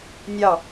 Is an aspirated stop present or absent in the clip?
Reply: absent